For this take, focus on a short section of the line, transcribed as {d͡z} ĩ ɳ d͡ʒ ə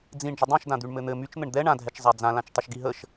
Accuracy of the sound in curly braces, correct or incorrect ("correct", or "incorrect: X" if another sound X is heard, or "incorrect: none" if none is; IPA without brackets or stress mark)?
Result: correct